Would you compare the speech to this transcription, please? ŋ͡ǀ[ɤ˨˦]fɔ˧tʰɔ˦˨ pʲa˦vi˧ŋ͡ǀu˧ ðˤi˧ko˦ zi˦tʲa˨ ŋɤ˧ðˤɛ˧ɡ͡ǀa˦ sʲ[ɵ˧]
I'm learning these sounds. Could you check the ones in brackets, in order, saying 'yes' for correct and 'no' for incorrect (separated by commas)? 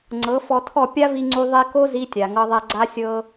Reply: yes, no